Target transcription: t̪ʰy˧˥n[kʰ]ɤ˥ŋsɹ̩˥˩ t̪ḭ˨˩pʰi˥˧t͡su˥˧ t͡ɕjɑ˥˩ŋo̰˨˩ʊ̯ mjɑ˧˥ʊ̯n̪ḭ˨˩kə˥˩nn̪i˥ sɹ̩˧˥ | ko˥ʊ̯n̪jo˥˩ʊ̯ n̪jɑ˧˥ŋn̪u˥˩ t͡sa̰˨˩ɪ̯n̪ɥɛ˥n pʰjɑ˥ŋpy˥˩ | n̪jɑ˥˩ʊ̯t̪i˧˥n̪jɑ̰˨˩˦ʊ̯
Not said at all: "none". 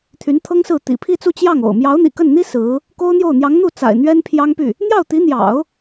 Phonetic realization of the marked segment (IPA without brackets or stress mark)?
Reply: t̪ʰ